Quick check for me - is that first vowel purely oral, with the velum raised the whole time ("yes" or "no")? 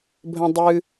no